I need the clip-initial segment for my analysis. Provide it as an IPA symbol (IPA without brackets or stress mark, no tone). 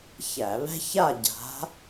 ç